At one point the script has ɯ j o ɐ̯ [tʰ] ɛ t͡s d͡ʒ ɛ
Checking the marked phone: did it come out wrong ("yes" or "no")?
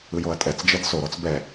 yes